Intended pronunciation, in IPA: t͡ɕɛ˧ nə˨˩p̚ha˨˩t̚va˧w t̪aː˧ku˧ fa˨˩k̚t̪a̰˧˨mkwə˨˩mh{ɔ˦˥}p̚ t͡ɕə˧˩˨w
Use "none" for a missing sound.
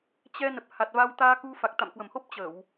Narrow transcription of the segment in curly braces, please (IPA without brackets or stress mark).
o˦˥